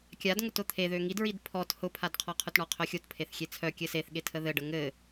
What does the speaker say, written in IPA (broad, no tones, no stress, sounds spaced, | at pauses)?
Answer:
kʲ a d ŋ ʊ t ʊ t̪ʰ e ð ø ŋ i d ɹ i d pʰ ɔ t h ʊ pʰ a d qʰ ɔ qʰ ʊ t ɳ ɔ qʰ œ xʲ o t pʰ e θ xʲ e t͡sʰ œ kʲ ɘ s e θ ɠ e tʰ ə ð ɘ ɖ ə ŋ ɘ